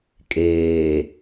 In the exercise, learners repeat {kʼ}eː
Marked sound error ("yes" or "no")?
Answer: no